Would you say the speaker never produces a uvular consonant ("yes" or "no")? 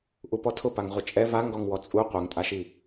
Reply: no